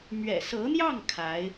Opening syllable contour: low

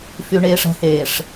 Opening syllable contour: low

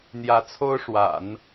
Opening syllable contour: rising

